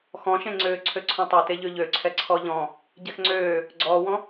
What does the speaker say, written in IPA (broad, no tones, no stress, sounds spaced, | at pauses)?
x ɔ̃ ʃ ẽ ŋ͡ǀ øː ǀʰ ø ǀʰ ɔ̃ tˤ ɛ t e ʎ ø ʎ ø ǀʰ ɛ ǀʰ ɔ ʎ ɔ̃ | ɟ ɛ x ŋ͡ǀ øː | ɡ͡ǀ ɔː w ɔ̃